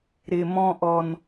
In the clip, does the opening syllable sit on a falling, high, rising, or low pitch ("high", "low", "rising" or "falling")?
low